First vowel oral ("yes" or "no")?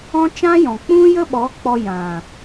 no